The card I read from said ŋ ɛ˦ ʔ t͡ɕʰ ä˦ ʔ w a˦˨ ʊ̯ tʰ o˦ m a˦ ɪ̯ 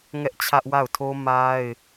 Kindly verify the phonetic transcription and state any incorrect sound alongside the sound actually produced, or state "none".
none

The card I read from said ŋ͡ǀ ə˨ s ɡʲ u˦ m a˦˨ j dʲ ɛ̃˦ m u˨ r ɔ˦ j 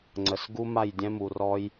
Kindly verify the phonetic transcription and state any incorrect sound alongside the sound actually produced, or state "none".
ɡʲ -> ɡ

